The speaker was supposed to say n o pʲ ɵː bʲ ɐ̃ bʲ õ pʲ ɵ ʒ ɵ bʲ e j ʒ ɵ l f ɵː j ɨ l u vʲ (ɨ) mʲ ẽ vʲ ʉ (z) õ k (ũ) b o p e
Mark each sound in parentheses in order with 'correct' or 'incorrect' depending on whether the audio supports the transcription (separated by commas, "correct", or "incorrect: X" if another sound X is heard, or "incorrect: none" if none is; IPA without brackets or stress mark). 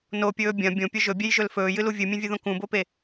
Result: correct, incorrect: ð, correct